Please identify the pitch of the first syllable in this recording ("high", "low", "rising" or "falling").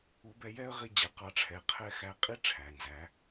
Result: rising